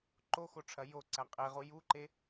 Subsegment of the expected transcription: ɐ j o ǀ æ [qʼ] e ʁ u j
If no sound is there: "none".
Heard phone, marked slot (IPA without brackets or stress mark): qʼ